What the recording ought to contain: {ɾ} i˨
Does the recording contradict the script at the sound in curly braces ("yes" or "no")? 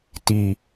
yes